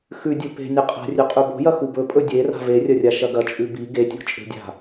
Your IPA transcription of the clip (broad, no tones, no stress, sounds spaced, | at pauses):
x ʉ dʲ ɵ p e̤ nʲ ɐ qʼ a̤ rʲ ʉ qʼ ʉ b o̤ j ɐ x u b ɵ pʼ ɵ dʲ e r a̤ v e rʲ ɐ rʲ a ʃ ɐ ɡ ɐ t͡ʃʼ ʉ b i ɡ e tʲ o̤ t͡ʃʼ e̤ dʲ a̤